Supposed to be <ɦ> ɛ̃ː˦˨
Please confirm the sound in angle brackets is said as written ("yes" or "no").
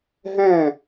yes